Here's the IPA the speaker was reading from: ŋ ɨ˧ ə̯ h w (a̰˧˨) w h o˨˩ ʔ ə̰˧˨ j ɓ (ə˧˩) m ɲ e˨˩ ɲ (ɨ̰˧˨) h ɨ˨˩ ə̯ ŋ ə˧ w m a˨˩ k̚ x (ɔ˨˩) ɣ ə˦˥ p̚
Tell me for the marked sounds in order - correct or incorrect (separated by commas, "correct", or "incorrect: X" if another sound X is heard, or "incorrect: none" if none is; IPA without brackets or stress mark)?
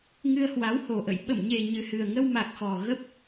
incorrect: a˨˦, correct, incorrect: ɨ˨˩, correct